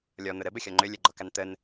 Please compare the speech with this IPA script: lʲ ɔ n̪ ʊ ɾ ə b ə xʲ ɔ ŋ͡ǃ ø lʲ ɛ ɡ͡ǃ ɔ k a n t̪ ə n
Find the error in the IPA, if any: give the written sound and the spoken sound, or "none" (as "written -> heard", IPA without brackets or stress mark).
none